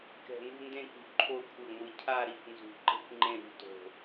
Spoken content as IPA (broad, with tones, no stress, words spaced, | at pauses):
kɛ̤˨˩nṳ˦˨ ndẽ˦˨kṳ˨˩ ǃʰo˦˨kʷʰɯ˨˩ŋʷɯ˨˩ cʰa˦˨ ɾi˨˩kʷnzṳ˨˩ ǃe̤˦˨kʷŋ͡ǃẽ˦˨ ɾṳ˦˨ to̤˨˩